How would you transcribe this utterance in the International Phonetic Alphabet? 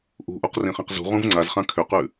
ʔ ṳ ʔ u q r ĩ χ ĩ q z ṳ ʁ ũ v ŋ͡ǀ a z χ ã kʰ ʏ q ʉ

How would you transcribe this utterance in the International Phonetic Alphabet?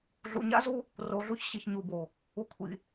ɮ ṵ˨ ɲ a̰˦ z u˦ | r o˨ ɮ u˦ ç ɕ i˨ ç ɲ u˨ b o˨ | u˨ kʷʰ ḭ˨

